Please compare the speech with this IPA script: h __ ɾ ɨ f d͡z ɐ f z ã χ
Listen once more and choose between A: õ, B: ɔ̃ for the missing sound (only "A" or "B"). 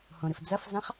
A